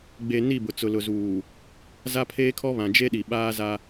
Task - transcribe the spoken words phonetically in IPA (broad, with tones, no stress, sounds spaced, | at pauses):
ɡ͡b e˨ n i˦˨ b ʊ˨ t͡s ʊ˨ l ʊ˨ z uː˨ | z a˦ pʰ eː˦ kʰ ɔ˦ β ã˨ d͡ʒ e˦ ɗ i˨ ɓ aː˦ z a˦